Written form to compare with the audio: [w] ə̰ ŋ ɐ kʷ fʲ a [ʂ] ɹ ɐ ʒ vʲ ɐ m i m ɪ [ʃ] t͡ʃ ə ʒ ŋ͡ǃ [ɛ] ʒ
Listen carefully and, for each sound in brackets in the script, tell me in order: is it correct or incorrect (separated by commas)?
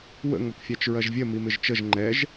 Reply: correct, incorrect, incorrect, correct